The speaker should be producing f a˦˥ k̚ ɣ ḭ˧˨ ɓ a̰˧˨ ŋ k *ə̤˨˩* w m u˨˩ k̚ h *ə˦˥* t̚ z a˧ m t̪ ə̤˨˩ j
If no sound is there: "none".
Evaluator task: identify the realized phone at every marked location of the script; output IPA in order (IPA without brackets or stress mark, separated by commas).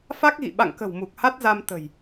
ə̤˨˩, a˦˥